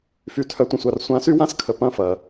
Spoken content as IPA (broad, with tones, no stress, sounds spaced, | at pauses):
f y˨ tʰ œ˨ tʷ ə̃˨ sʷ a˨ r sʷ ã˨˦ s y˦ w ã˦ s kʰ ə˨ p ɐ̃˦ f ɐ˨